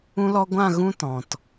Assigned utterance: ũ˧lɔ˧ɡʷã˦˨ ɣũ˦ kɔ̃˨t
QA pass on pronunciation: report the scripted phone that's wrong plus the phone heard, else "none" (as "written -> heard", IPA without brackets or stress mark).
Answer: k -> t